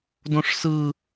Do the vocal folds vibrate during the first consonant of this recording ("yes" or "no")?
yes